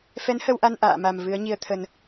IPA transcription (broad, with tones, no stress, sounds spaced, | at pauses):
f ɛ˨˦ n h ə˧ w ʔ a˧ n ʔ a̰ː˧˨ m a˨˩ m v ɨ˨˦ ə̯ ɲ i˧ ə̯ t̪ʰ ə˧ n